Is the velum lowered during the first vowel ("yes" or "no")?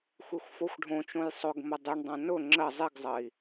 no